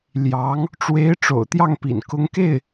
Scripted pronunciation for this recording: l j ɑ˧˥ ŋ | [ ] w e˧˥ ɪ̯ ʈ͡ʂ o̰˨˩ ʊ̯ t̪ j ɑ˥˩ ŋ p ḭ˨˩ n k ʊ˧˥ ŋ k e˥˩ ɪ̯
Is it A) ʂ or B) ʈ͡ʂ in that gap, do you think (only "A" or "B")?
B